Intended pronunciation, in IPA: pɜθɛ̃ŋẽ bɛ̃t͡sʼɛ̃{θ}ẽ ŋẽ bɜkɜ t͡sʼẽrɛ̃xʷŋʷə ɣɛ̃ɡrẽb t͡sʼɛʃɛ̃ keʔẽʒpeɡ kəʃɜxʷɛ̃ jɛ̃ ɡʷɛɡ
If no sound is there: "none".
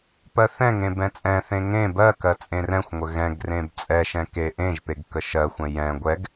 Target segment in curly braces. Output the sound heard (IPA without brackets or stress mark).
θ